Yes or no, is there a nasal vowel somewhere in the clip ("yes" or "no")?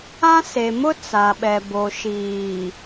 yes